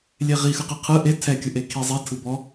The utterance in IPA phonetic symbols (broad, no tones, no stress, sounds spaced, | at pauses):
lʲ e ʁ i x ɯ q i qʰ ɯ ʔ e tʰ ɛ kʲ ɯ ʔ e kʰ i zˤ i tʰ ɯ b ɔ